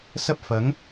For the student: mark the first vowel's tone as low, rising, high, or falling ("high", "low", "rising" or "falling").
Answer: high